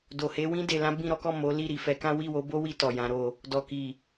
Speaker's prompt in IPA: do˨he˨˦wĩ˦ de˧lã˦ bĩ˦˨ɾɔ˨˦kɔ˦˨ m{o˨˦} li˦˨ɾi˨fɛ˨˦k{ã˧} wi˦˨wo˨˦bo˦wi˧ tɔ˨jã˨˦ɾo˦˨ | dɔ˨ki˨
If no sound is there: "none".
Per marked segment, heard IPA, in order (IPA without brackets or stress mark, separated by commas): o˨˦, ã˦